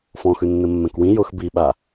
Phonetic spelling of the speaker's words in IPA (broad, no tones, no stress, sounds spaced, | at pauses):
f ɔ̃ x ʉ nː ɘ mː ɛ̃ k w ĩ j ʊ x b i ɓ a